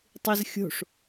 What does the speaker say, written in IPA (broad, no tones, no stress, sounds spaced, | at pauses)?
tˤ i z xʲ o̤ ʂ